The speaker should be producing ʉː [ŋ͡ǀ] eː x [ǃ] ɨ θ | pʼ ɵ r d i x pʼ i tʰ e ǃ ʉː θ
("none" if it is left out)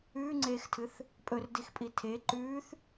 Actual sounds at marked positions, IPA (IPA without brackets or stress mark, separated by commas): ŋ͡ǀ, tʰ